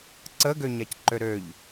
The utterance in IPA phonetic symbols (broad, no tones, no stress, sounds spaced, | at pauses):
ǀ ə ɡ ø ɲ a c ǃ ø ɾ ø ʎ